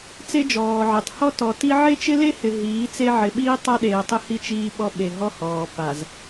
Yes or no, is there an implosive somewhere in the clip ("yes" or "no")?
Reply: yes